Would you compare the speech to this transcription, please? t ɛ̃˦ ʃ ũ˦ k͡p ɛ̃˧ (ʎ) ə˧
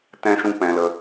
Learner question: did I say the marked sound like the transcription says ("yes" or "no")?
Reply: no